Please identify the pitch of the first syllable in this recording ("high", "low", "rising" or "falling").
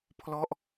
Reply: falling